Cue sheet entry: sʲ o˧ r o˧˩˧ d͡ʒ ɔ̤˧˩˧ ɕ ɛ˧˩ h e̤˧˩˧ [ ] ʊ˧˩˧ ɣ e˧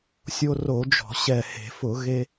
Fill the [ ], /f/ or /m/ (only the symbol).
f